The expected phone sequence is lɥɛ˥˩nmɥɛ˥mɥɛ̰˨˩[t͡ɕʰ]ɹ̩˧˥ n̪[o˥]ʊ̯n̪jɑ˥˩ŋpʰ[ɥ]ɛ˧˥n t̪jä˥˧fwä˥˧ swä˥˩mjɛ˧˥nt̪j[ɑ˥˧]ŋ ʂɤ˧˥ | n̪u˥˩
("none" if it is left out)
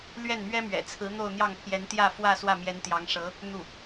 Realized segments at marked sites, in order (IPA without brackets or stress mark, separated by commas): t͡sʰ, o˥˧, j, ɑ˧˥